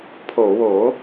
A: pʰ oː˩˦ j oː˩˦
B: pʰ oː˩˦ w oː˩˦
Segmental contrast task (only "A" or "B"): B